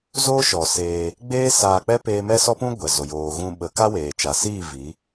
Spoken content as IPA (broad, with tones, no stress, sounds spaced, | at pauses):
z oː˦ ʃ ɔ˨ s eː˧ | ɡ͡b eː˦ s aː˧ k͡p ɛ˦ p eː˦ m ɛ˦ s ɔ˦ p ũ˦ ɡʷ ɛ˨ z o˨ j oː˨ ɣ ũ˧ ɓ ə˨˦ k a˦ w eː˨ t͡ʃ a˨ s iː˦˨ v i˨˦